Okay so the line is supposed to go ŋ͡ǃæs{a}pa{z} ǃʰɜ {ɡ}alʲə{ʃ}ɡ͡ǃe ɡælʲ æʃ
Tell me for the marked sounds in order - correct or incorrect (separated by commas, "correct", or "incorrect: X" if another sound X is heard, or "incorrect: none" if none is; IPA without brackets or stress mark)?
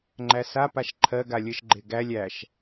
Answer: correct, incorrect: ʃ, correct, correct